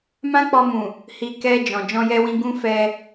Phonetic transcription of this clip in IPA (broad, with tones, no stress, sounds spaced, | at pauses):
m ã˦ k͡p ɔ˧ m ũ˨ | h i˧ k ɛ˧ d͡ʒ ɔ̃˨ d͡ʒ ɔ̃˧ j ɛ˧ w ĩ˧ ɡ ũ˦ f ɛ˧